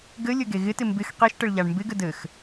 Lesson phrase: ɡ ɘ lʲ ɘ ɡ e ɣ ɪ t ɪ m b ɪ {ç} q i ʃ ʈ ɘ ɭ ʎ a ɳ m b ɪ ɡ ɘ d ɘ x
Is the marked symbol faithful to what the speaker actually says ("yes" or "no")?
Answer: no